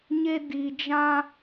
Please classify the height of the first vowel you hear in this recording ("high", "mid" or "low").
mid